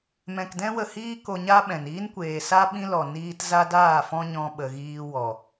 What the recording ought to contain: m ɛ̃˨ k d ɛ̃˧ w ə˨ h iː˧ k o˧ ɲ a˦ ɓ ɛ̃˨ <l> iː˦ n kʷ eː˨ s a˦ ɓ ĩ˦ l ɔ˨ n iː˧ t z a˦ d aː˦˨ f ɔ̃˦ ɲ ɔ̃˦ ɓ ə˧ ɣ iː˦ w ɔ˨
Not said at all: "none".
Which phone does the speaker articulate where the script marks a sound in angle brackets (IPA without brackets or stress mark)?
n